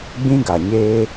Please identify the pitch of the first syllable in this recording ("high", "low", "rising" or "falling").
high